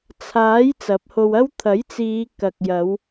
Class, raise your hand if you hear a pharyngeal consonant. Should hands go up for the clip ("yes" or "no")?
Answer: no